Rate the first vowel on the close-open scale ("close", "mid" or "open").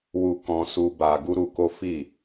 close